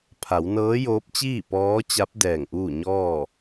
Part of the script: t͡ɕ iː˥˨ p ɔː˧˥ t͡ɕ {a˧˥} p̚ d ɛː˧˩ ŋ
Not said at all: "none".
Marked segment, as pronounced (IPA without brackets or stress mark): a˧˥